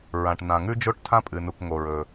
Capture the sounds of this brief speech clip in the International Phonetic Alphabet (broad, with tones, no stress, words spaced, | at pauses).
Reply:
ɹã˩ʈ nã˩ŋʉ˥d͡ʒo˥ʈ tʰã˥pʼɨ˩nu˩k ŋo˩ɹɵ˩